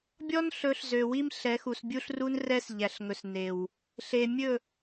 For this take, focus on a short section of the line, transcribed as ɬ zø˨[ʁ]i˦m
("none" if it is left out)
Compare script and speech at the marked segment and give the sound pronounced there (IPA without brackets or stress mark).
w